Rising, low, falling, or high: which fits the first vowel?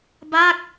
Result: falling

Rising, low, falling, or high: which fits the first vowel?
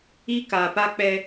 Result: high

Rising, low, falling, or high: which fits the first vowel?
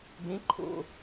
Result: rising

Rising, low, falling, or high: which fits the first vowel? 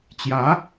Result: rising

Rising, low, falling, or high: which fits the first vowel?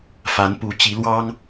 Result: rising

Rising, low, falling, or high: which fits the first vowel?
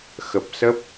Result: low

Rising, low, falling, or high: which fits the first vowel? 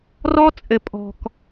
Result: high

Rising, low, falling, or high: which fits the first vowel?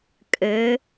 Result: rising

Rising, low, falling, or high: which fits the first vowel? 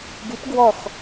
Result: rising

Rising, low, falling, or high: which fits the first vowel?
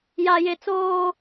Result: high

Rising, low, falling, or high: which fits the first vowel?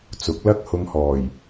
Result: rising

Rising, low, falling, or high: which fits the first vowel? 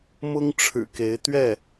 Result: high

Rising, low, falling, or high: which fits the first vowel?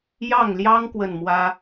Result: falling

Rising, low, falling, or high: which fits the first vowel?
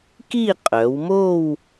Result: falling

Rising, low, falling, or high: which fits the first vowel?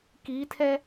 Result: rising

